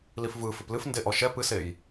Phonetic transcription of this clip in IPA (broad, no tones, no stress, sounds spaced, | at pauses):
l i f v ɯ f ɨ p l ɨ f n d e ʔ ɔ ʃ ɛ p ɨ s e j